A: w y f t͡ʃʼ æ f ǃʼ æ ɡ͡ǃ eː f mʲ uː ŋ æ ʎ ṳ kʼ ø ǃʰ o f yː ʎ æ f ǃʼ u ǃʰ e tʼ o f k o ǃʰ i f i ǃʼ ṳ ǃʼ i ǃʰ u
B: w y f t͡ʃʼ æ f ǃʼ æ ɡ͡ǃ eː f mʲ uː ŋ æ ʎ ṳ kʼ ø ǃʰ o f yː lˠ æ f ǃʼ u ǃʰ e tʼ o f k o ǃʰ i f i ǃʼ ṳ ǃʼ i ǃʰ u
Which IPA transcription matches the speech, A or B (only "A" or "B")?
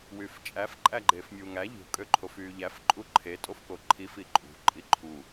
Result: A